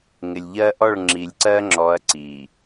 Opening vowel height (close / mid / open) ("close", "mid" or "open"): close